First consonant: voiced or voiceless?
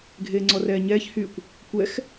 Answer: voiced